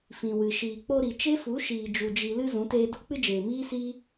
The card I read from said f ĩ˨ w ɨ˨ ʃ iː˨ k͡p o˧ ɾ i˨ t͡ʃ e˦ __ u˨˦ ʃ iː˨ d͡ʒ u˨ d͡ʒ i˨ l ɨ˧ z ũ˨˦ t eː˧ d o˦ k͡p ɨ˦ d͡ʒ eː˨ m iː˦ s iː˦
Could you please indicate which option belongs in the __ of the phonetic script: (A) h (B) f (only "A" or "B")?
B